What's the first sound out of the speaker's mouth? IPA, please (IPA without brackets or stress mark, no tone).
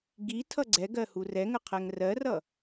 ɡ